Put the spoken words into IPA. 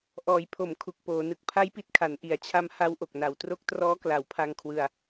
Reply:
ʔ ɔː˩˦ j pʰ o˩˦ m kʰ u˨˩ k̚ p oː˩˦ n ɯ˨˩ k̚ pʰ a˦˥ j p i˨˩ t̚ kʰ a˩˦ n ʔ i˩˦ a̯ t͡ɕʰ a˦˥ m h a˦˥ w ʔ o˨˩ k̚ n a˩˦ w t r o˦˥ k̚ t r ɔː˦˥ k l a˩˦ w pʰ a˧ ŋ kʰ w ɯ˧ a̯

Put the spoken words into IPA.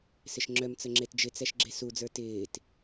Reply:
s ɪ ʃ ŋ͡ǁ œ m t͡s ə ŋ͡ǁ e t d͡ʒ ɪ t͡s ɛ ʃ ɡ͡ǁ e s u d͡z ə˞ t ɪː t

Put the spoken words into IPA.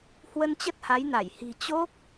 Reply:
h w ə˧ n t͡ɕ ə˦˥ t̚ h a˨˦ j n a˧˩ j h i̤˨˩ t͡ɕ o˦˥ k̚

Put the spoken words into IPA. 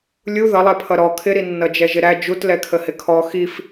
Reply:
lʲ u ð ʌ lˠ ɛ pʰ ʌ ɾ ɔ kʰ ɪ ɾ i nː ʌ d͡ʒ ɛ ʒ ɪ ɾ æ d͡ʒ u t l ɛ kʰ ə h ɪ kʰ ɔ x i f

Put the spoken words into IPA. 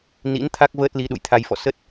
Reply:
n ḭ˧˥ n t̪ʰ a˦˥ k̚ v əː˦˥ t̚ l i˨˦ ɗ ṵ˧˨ j t̪ʰ a˧ j f ɔ̰˧˨ s ə˦˥ t̚

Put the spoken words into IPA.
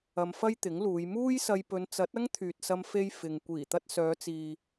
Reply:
ɐ˧ m f ɐ˥ j t̪ ɪ˨˥ ŋ l uː˨˧ j m uː˥ j s ɐ˧ j p ɵ˨˧ n t͡s ɐ˨˥ t̚ ɐ˥ ŋ t̪ʰ yː˨ t̚ s ɐ˧ m f e˧ j f ɪ˨ ŋ kʷ iː˨˩ t̪ ɐ˧ t̚ s œː˨˧ t͡s iː˨

